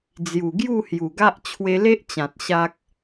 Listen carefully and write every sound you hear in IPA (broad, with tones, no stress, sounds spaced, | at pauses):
d͡z j u˨˩ ɡ j u˥˧ h j u˨˩ ɡ a˦ ʔ t͡ɕʰ w e˧ l e˦ ʔ t͡ɕ ã˨ t̚ ɕ a˦ k̚